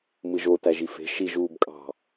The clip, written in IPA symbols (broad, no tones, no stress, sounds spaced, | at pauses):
m ɯ ʒ o t æ ʒ i f e̤ ʃ i ʒ uː b kʼ ɑ̤